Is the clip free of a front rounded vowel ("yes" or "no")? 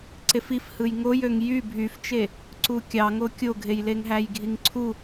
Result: no